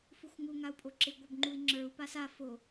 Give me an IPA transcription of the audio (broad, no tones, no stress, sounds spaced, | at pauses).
f u xʷ ŋ u ŋ a u̯ pʼ o ǁ ɪ ɡʷ œ b ŋ͡ǃ u i̯ ŋ͡ǁ ə˞ u̯ p a s a f o